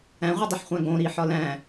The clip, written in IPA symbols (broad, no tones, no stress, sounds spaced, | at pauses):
æ̃ ʁʷ i dˤ i ħ χʷ æ̃ ɡ õ ɾ i ħ ɒ l æ̃